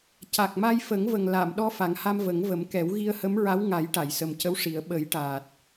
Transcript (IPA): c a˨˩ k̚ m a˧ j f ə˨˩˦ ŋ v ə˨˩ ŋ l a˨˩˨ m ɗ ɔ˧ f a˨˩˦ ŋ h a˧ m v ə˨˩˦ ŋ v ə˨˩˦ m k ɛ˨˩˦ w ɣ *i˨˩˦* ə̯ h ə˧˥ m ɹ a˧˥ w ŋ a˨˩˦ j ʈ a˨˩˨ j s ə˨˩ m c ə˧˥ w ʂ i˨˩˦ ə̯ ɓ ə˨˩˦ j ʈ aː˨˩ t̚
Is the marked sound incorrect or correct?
incorrect